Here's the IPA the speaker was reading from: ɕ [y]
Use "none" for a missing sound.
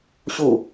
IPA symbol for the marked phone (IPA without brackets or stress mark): u